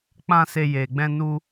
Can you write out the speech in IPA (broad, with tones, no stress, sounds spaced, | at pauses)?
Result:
k͡p ã˦ s e˦ j e˧ ɡ͡b ɛ̃˦ n u˦